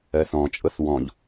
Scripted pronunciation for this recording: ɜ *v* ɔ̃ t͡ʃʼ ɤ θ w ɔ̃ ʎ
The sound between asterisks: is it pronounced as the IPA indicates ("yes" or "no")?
no